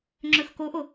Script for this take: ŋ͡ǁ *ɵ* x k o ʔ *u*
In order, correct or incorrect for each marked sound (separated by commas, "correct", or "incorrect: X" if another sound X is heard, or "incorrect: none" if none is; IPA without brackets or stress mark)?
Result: correct, incorrect: o